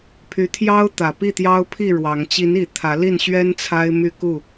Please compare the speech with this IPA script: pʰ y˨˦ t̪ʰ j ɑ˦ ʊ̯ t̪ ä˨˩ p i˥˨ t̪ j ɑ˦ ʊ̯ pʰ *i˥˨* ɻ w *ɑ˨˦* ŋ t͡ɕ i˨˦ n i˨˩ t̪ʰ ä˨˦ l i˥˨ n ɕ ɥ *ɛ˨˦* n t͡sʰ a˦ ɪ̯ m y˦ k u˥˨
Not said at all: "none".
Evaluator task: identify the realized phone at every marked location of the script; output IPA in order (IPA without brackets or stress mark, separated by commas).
i˥˨, ɑ˨˦, ɛ˦